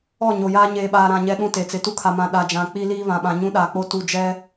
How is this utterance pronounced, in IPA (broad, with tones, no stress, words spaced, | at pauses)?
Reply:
ɔ˦˨ɲo˨jaː˦ ɲeː˨ɓaː˨ɾã˨ ɲɛ˦ɗũ˦te˨ t͡sɪ˨tu˦kʰa˨mã˨ ɗa˨d͡ʒã˨ k͡pi˦li˦βã˨ɓã˨ ɲũ˦ɗa˨k͡po˦ tu˦˨ d͡ʒɛ˦